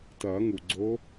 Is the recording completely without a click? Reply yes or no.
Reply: no